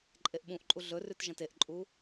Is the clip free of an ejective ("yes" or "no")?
no